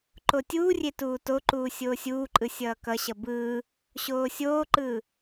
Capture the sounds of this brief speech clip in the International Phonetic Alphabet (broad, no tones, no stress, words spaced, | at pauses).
ǃotʲuːrʲe tuːtoǃuː sʲoːsʲuːǃʼɯ sʲʌːkʌɕʌ bɯː | ɕoːsʲoːǃɯː